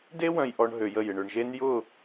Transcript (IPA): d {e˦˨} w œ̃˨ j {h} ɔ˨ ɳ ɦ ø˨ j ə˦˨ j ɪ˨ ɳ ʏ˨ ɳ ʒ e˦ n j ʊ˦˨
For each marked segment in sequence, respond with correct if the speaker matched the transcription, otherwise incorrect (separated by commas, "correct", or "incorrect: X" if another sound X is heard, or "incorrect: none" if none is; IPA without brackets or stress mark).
incorrect: e˦, incorrect: ʔ